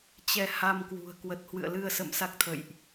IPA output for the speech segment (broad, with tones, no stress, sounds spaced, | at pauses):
t͡ɕ ɛ˧ h a˧ m k w ṳ˨˩ ə̯ k w ə˨˩ t̚ h w ɨ̰˧˨ ə̯ l ɨ˧ ə̯ s ə̰˧˨ m s a˦˥ k̚ t̪ʰ ə̰˧˨ j ʔ